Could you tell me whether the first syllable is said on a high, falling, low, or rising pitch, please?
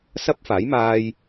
high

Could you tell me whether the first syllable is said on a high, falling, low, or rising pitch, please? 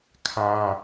high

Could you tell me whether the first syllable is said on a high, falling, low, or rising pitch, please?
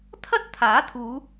high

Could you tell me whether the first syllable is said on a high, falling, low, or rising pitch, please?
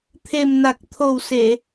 low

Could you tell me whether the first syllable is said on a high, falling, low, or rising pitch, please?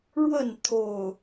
falling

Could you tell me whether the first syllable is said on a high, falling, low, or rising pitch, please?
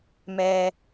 high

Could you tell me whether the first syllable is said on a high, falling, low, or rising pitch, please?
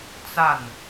falling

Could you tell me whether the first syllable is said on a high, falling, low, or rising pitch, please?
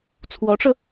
rising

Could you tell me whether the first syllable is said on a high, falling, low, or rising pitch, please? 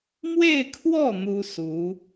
falling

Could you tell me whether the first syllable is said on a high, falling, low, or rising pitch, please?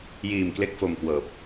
low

